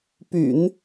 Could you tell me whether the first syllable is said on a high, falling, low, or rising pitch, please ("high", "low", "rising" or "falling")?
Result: low